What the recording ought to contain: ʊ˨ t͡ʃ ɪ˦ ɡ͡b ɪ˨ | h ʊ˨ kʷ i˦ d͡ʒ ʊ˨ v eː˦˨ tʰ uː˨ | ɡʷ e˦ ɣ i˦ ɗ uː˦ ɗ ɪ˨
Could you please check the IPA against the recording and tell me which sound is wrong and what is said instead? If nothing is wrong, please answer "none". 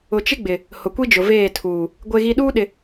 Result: none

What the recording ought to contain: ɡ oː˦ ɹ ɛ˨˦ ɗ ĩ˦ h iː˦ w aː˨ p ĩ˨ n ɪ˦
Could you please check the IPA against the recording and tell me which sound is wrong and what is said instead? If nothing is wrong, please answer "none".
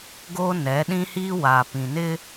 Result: ɹ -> n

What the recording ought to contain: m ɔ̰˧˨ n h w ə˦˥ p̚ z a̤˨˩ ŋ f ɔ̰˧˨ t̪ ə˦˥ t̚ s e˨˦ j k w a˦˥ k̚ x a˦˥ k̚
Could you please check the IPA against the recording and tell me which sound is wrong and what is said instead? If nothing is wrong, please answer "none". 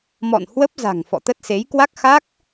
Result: none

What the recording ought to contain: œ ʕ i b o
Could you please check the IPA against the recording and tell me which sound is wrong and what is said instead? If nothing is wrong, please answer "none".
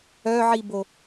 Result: none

